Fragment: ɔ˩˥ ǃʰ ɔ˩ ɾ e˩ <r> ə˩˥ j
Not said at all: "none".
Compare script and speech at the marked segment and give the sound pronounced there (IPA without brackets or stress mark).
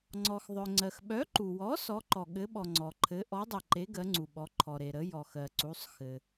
ɾ